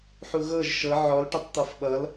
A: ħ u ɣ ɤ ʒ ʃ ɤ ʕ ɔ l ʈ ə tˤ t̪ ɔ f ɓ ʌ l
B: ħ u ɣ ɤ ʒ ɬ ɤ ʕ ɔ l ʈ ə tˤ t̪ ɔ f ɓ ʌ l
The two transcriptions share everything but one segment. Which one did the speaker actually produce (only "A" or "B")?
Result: A